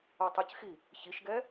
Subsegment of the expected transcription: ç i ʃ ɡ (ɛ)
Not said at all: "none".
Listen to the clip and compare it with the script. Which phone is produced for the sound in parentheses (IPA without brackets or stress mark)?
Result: ɛ